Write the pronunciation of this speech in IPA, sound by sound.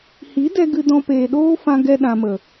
hi˨˦dɛ˧ ɡɨ˧dɔ̃˧ peː˨ɗoː˦fã˧ɡɛ˧ ɗã˧mə˨

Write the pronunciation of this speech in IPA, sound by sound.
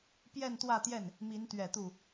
pjɛ˥˧nt̪wä˥˧t̪jɛ˥˩n | mi˧˥nt̪ɥɛ˨˩t̪u˥˩

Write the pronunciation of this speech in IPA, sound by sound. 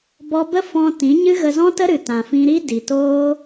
bɔ˧bə˦ fɔ̃˧tĩ˨˦ɲɨ˦ ɣə˧zɔ̃˦tə˦ ɾɨ˨tã˨fĩ˧ ɾi˦ di˨toː˦

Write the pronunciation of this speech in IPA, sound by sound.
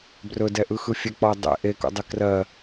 brɵdɛʔɯxɯ fʲɛk͡pɔə̯ dˤḛ ʔekṵdˤe krɜ

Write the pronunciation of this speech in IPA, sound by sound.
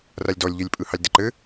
ralʲdɔlʲʎelʲpʼɯ hɑlʲdɘǃɘ

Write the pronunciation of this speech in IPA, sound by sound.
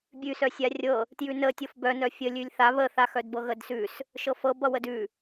bʲʉsœ sʲarʲɤ | tjʉnə tʲɤfbœ nœfʲəlʲʉlʲ θa βəθaxœdbɤ ɣədsʉs | ʃɤfɤ bʌwədʉ

